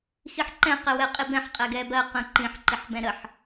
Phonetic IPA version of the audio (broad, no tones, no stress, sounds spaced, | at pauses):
x i ħ ǃ ɛ̃ q ɛ w ɛ qʼ i b ɛ̃ ħ qʼ ɛ ɡ ɛ b ɜ q ə̃ ǃ ĩ ħ ǃ i ħ b ɛ̃ ɾ ə ħ